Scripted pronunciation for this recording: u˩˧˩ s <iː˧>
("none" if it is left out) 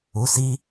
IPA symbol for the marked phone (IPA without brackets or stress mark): iː˧